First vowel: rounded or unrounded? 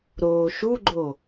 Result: rounded